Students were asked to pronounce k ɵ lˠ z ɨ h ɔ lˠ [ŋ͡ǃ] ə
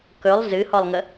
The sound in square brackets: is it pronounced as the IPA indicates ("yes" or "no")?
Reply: no